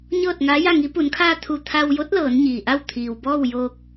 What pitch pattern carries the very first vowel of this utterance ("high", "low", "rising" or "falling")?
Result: falling